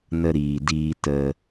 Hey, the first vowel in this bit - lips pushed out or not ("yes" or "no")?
no